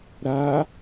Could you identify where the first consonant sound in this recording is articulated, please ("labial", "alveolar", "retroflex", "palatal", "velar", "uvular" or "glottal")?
alveolar